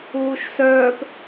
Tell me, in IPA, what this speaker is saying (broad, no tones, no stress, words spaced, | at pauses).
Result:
uːʃsœːp